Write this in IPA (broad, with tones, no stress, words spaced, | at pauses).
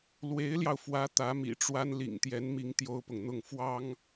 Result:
lwe˧˥ɪ̯ljɑ˧ʊ̯fwä˧˥ t̪ä˧˥mḭ˨˩ʈ͡ʂwa˥n lḭ˨˩ŋt̪jɛ˧˥nmi˧˥ŋ t̪jo˥ʊ̯pʊ˨ŋn̪ʊ˥˩ŋ fwɑ˥ŋ